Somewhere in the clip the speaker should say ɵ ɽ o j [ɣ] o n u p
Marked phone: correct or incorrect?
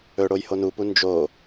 incorrect